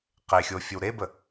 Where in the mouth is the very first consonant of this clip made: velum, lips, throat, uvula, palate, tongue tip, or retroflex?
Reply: uvula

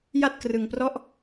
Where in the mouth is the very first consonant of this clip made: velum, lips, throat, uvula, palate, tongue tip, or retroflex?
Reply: palate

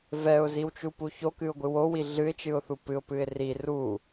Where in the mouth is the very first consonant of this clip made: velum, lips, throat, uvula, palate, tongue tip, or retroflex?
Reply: lips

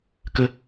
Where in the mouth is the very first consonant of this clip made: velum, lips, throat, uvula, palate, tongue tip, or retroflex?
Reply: velum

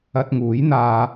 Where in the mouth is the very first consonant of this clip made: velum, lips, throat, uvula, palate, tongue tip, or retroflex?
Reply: tongue tip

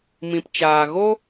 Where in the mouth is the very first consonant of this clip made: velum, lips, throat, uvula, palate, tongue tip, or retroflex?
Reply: lips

